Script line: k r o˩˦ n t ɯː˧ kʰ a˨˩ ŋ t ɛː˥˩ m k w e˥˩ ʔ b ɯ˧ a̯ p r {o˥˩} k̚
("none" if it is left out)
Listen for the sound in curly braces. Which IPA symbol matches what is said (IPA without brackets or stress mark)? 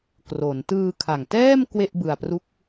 u˥˩